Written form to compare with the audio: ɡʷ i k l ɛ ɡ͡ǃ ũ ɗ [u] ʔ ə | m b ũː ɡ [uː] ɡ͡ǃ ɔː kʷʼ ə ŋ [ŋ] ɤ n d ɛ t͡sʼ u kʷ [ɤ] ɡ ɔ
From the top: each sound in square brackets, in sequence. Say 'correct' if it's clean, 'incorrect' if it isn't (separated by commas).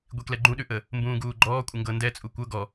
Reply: incorrect, correct, incorrect, correct